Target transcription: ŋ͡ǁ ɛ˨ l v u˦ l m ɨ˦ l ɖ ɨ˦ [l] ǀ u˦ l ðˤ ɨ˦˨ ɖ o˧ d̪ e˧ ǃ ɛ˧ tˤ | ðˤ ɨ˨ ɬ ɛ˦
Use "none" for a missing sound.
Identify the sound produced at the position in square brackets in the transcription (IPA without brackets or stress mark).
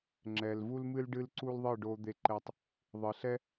l